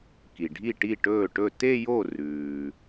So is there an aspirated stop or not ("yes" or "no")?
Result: no